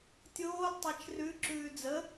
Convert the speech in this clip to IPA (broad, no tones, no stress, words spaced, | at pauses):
tʲoːl tˤat͡ʃrʉ ǁʉːd͡zə